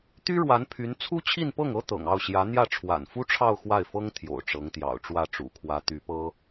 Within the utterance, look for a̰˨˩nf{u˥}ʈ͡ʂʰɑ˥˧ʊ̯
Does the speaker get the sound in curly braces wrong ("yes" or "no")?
no